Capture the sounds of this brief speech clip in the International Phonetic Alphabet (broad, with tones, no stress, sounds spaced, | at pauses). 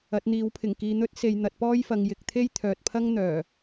ɐ˨˥ t̚ n̪ iː˨˥ w pʰ ɪ˨˩ ŋ k iː˨ n̪ ɵ˥ t̚ s e˨ j n̪ ɐ˨ t̚ p ɔː˥ j f ɐ˨ ŋ j ɪ˨ k̚ t̪ʰ e˥ j t̪ʰ œː˨ t̚ pʰ ɐ˥ ŋ n̪ œː˨˩